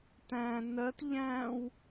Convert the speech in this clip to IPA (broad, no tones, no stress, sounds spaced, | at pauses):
t æ̃ n ɜ t ʎ æ̃ w